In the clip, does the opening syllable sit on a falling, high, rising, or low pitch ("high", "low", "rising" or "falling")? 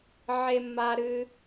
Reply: high